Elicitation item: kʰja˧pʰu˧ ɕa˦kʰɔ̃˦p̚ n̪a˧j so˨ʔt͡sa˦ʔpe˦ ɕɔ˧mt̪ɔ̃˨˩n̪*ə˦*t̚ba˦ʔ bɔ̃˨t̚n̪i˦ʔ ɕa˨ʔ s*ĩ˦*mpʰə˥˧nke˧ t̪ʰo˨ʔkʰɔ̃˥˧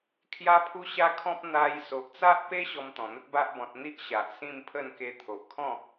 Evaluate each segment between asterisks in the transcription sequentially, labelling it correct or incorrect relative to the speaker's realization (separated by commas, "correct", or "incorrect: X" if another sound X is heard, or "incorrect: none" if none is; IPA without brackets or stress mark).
correct, incorrect: ĩ˥˧